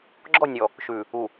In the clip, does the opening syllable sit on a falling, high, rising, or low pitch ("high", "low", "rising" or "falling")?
falling